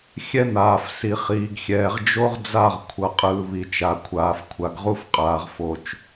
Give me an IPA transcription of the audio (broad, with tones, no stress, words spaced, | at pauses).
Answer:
xʲɛ˦n̪aː˨f si˨χiː˨ɡxʲɛː˨ʁ d͡ʒo˦ʁd͡za˦˨ʁ kʷʰʌ˨qʼɯː˨ βi˨t͡ʃa˨kʷʰaː˨f kʷʰa˨ɡʁu˦f qʼaː˨ʁfo˨t͡ʃ